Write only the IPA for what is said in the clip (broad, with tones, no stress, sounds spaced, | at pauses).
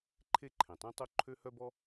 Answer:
ǃʰ e˥ ǃʰ ẽ˩ tˤ ẽ˥ tˤ o˥ ǃʰ ø˥ h œ˥ b ɔ˥